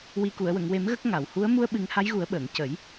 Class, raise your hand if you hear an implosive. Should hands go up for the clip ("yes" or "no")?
yes